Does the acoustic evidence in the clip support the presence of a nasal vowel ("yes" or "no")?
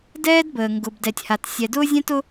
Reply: yes